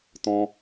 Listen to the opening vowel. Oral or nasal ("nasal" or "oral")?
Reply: nasal